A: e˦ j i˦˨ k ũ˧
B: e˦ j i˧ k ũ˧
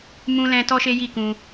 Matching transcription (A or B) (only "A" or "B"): A